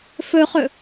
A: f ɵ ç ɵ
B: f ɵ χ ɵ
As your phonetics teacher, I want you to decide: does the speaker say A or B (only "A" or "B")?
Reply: B